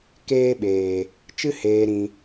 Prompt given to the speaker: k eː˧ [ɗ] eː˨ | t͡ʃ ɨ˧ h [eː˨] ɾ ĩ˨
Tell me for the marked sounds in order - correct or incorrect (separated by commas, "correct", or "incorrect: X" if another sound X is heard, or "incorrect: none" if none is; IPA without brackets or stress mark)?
incorrect: ɓ, correct